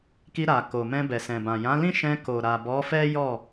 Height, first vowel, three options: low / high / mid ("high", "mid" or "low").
high